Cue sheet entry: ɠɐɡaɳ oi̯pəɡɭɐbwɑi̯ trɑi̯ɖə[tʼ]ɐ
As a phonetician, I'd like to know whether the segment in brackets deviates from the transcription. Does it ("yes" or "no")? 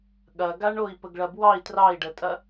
no